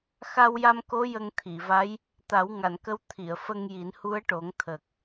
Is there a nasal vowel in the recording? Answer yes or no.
no